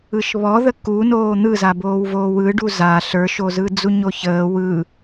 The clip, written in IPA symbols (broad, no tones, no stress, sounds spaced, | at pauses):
ɯ ʃ β ɔ ð ə k u n oː n̪ ɯ z a b oː w v oː w ɯ ɖ u z a ɬ ə˞ ʃ o z ɯ d͡z u ɲ o ç əː w ɯ